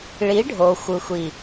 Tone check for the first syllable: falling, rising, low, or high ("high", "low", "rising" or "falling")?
rising